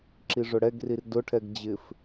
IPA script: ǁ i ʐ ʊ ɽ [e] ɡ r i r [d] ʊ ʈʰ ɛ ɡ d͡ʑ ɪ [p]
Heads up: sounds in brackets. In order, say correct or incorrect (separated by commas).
incorrect, correct, incorrect